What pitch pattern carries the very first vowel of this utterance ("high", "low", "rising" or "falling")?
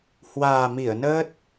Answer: low